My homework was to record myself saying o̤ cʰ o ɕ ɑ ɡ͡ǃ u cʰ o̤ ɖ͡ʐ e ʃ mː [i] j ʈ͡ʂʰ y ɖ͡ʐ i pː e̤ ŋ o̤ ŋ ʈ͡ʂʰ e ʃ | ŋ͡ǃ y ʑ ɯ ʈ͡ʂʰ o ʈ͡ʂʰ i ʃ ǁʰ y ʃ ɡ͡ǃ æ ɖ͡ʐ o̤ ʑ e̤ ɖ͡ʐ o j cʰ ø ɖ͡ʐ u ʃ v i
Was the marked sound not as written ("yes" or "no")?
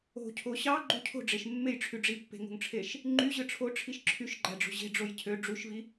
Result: yes